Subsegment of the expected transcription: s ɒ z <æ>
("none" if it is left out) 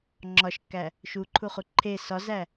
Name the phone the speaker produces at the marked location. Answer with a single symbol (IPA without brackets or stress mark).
æ